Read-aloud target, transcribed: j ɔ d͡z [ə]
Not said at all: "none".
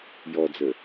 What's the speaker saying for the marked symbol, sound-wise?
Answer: ə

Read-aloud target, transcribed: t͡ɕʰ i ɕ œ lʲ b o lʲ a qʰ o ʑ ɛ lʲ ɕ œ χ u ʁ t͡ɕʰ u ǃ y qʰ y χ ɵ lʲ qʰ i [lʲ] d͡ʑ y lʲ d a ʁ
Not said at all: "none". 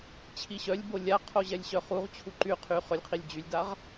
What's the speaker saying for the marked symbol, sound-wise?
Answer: lʲ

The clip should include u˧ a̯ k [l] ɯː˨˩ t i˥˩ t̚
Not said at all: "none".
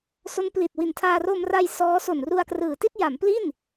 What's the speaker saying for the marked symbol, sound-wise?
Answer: r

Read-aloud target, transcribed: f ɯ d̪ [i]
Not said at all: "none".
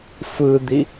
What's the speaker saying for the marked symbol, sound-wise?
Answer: i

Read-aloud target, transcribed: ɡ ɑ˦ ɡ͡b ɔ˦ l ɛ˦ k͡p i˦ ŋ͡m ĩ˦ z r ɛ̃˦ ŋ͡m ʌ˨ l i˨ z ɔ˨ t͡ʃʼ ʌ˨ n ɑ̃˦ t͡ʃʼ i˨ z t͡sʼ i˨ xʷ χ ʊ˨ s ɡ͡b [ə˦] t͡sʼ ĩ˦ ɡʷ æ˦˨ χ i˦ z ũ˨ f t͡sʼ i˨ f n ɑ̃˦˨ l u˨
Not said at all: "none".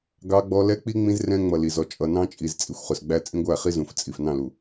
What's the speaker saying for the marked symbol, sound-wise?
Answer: æ˦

